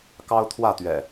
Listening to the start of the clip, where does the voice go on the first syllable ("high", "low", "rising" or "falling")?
high